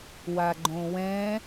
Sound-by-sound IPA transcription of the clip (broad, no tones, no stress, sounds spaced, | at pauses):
w a ɡ͡ǃ õ w ɛ̃